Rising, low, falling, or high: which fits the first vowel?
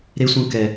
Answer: high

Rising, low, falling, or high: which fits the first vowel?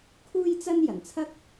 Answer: high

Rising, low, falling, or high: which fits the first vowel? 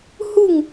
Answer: falling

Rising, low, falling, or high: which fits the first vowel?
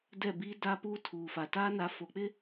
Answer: falling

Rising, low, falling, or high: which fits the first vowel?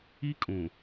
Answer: high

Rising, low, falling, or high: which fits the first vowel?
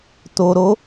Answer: low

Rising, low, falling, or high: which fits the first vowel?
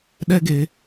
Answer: high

